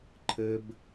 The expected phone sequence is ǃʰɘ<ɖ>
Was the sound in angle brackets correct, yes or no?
no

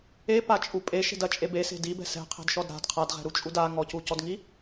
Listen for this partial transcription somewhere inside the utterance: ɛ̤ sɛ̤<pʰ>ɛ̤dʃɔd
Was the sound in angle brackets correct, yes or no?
no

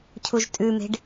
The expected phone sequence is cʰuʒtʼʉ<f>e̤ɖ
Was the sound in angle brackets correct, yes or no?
no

